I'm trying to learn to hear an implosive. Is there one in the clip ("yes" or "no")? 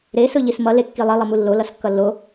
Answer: no